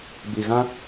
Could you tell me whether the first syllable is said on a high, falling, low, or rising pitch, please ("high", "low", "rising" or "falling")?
low